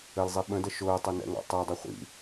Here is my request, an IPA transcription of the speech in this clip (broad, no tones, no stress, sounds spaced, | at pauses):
ə l zˤ i ɓ ə̃ d ə ʃ ʊː tˤ ʊ n ɛ̰ ŋ ɑ̰ tˤ ɛ dˤ ʌ χʷ ḭ